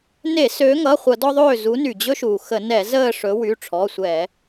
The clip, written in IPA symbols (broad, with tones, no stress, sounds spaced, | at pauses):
n e˧˩˧ s ø˨˦ ŋ ʌ˩˧˩ χʷ ʌ˧˩˧ d ɔ˦ ðˤ øː˦˨ z u˨˦ n y˩ d͡ʑ ɵ˦ ʃ uː˩ x ə˧˩˧ n ɛ˧˩˧ z əː˦˨ ʂ ɵ˨˦ w y˩˧˩ ʈ͡ʂʰ ɔ˩˧˩ sʷ ɛ˧˩˧